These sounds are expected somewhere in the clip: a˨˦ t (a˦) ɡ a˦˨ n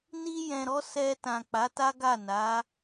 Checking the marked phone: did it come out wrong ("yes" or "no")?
no